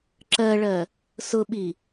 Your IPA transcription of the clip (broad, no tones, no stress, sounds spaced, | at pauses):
ǁ ɜ ɭ ɜ | s ʊ ɓ i